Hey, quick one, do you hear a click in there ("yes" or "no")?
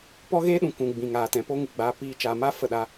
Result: no